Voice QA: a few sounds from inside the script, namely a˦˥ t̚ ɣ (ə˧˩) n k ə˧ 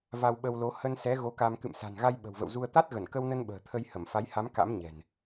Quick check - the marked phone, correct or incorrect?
correct